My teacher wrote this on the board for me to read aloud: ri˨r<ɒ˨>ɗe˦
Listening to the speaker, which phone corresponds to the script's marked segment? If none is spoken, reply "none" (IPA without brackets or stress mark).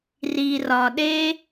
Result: ɒ˨